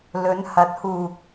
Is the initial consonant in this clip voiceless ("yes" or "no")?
no